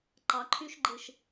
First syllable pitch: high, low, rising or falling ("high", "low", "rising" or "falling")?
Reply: rising